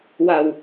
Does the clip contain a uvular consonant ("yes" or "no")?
no